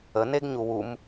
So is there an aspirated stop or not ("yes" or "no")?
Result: no